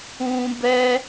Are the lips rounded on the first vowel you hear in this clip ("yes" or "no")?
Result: yes